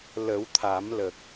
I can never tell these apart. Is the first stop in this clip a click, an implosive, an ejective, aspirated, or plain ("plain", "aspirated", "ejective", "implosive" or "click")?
aspirated